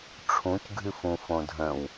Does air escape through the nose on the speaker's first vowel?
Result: yes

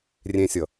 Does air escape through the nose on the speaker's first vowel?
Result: yes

